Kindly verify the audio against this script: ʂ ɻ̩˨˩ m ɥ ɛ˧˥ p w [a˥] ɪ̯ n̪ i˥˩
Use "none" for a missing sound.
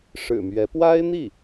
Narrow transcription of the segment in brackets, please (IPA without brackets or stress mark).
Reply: a˥